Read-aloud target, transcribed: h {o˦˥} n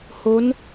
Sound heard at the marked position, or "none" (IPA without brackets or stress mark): o˦˥